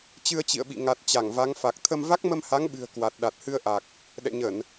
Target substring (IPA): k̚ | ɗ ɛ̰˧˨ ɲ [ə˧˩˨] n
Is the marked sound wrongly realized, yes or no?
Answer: no